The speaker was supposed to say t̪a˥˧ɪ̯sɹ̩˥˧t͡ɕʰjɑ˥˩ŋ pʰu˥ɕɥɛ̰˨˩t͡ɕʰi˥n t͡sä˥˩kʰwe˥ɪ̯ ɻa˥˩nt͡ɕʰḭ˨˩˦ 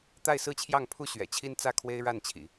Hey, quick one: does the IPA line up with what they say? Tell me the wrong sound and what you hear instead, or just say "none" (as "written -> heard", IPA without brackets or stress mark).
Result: none